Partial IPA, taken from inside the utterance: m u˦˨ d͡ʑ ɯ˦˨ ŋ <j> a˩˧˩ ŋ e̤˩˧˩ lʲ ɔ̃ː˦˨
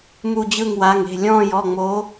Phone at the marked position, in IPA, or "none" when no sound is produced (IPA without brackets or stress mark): w